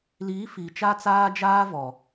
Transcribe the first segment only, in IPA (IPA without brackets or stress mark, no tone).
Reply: l